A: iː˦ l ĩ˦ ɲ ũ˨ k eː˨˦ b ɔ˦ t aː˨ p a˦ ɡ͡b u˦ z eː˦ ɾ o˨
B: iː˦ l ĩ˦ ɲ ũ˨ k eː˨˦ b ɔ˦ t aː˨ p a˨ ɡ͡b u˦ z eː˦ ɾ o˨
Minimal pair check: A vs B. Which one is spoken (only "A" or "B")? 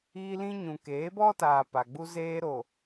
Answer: B